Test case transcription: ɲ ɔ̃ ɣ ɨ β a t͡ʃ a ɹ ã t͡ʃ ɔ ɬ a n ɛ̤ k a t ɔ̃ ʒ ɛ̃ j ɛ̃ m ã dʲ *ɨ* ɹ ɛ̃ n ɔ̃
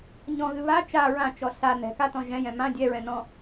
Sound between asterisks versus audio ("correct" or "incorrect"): incorrect